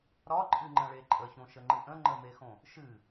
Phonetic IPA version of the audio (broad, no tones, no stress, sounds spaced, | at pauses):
ɾ ɒ ǃʼ ɨ ŋ͡ǃ ə̃ ɭ e ǃʼ ə ç õ ʃ ə ŋ͡ǃ ɨ ʔ ə̃ ŋ͡ǃ ə m e x õ | ʃ ɨ